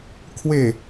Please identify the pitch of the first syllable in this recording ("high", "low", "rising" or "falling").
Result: low